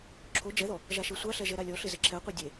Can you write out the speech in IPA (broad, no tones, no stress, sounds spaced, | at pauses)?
ǁʰ o d͡ʒ ɛ ð ɔ | ʒ a ʃ e sʷ a ɬ ɛ ʒ ɛ ɾ a lʲ ɔ ɬ ɪ z ɪ ǁʰ ɛ qʷ ɛ dʲ e